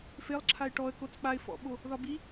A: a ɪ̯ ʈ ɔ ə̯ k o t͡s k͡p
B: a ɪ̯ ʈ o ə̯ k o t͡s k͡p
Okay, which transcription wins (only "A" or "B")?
A